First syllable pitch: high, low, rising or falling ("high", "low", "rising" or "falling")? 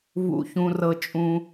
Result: low